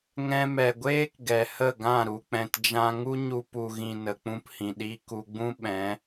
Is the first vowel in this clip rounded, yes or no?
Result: no